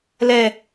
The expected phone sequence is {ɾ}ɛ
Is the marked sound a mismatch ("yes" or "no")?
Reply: yes